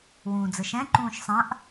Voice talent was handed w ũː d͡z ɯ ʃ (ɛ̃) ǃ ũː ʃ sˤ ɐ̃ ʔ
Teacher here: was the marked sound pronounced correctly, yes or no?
yes